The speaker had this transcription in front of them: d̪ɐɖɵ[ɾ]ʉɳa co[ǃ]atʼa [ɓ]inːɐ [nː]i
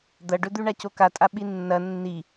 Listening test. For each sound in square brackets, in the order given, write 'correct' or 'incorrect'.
incorrect: d̪, incorrect: k, correct, correct

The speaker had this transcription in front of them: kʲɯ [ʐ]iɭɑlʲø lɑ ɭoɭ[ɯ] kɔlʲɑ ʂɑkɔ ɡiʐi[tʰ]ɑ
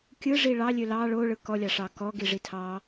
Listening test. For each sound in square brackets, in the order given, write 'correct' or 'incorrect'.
correct, correct, correct

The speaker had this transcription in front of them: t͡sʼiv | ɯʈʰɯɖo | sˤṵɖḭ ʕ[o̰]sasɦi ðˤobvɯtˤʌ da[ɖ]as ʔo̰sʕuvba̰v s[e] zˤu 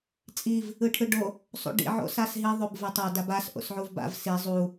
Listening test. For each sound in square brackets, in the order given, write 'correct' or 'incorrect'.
correct, incorrect: b, incorrect: i

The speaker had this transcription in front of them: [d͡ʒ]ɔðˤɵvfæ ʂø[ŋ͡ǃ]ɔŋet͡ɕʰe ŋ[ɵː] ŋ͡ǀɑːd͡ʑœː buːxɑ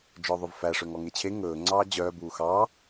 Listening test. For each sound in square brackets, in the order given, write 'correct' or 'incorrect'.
correct, incorrect: ŋ, correct

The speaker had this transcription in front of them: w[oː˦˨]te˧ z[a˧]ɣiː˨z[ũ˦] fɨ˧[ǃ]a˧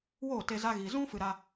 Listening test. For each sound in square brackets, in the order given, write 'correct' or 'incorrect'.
correct, correct, correct, incorrect: ɾ

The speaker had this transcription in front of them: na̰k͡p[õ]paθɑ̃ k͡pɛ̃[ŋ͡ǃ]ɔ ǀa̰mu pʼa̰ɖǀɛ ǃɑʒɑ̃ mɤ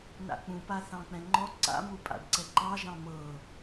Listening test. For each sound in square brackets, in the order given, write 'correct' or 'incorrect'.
incorrect: ũ, correct

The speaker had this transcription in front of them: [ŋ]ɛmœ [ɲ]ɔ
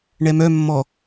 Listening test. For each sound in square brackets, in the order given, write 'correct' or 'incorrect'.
incorrect: ɳ, incorrect: mː

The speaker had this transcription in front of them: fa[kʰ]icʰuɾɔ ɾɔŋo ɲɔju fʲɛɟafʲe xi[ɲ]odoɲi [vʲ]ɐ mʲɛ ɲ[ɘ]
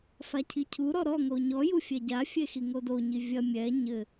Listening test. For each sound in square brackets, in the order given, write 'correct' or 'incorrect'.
incorrect: cʰ, incorrect: ŋ, correct, correct

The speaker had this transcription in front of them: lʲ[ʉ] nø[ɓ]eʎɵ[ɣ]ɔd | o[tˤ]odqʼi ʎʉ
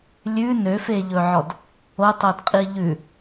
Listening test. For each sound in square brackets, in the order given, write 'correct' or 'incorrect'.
correct, incorrect: f, incorrect: ʕ, correct

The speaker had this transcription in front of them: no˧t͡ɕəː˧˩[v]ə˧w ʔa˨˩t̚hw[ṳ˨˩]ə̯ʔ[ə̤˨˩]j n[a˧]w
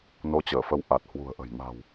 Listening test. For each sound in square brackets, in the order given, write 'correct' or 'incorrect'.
incorrect: f, correct, correct, incorrect: a̤˨˩

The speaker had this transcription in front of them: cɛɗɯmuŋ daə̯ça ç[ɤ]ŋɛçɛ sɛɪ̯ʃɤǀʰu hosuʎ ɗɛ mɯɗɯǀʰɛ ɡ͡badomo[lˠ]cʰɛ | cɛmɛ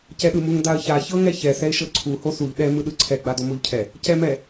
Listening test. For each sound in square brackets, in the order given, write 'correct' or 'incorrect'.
correct, incorrect: ʎ

